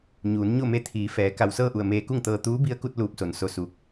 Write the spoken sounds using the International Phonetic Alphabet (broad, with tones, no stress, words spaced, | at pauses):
ɲuː˩˧n ɲo˥˨me˧˥t̪ʰiː˩˧ fɛː˩˧ ka˧˩wsɤː˥˨ʔu˧˩ə̯ meː˧ku˥˨ŋt̪ɤː˧ t̪uː˧˥bi˧˥ə̯ku˧t̚ luː˧˥p̚so˩˧nso˧ su˧k̚